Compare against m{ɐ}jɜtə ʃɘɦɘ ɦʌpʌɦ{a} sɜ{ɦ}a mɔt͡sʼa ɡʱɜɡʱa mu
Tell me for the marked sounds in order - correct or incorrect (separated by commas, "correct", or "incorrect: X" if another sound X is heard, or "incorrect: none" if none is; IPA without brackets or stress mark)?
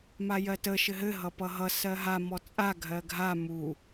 incorrect: a, incorrect: ʌ, correct